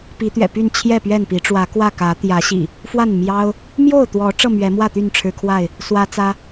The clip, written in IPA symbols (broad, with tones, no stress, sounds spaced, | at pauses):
p i˨˦ t̪ ɥ ɛ̰˨˩ p y˥˨ n t͡ɕʰ j ɛ˥˨ p ɥ ɛ˥˨ n p i˨˦ ʈ͡ʂ w ä˨˦ k w ä˥˨ k ä˨˦ t̪ j ä˨˦ ɕ ḭ˨˩ | f w a˥˨ n m j ɑ˦ ʊ̯ | m j o˥˨ ʊ̯ t̪ w ɔ˨˦ ʈ͡ʂ ɤ˥˨ m ɥ ɛ˨˦ m w ä˥˨ t̪ y˥˨ n ʈ͡ʂʰ ɻ̩˦ kʰ w a˥˨ ɪ̯ | s w ä˦ t͡s ä˦